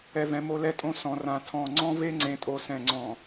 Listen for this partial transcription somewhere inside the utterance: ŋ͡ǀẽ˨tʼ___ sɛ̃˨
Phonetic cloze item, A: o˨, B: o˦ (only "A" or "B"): A